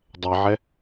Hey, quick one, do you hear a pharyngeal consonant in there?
yes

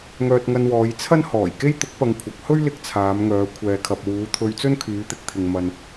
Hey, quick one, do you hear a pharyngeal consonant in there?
no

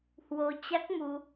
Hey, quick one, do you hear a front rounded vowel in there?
no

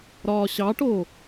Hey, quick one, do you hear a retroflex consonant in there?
yes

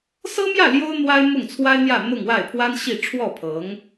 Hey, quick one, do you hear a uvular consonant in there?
no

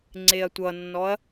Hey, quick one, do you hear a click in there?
yes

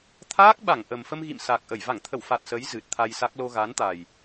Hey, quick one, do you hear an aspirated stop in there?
yes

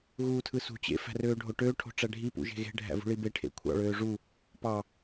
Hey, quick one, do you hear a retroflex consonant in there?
yes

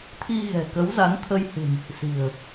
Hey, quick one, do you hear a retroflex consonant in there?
no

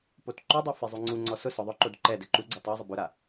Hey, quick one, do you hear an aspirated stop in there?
no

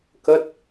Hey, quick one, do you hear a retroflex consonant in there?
no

